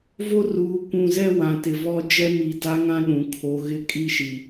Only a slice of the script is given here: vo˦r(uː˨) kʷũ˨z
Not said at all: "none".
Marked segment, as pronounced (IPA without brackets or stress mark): uː˨